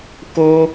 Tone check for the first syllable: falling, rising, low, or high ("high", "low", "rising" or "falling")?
high